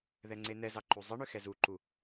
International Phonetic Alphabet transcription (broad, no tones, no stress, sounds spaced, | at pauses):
ð ɛ ŋ͡ǀ e n ɛ z ɑ ǃ u zˤ ɘ ɳ ʏ x ɛ z u ǃ u